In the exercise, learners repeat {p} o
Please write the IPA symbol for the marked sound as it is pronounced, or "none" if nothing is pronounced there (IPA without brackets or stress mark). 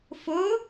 f